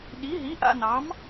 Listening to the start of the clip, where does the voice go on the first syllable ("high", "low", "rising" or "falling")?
rising